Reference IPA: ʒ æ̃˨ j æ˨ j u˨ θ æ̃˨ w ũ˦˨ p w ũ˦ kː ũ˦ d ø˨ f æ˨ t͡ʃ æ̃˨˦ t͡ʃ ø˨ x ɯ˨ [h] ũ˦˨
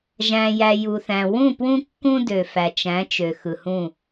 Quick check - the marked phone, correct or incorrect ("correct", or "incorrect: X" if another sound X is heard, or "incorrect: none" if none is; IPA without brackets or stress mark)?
correct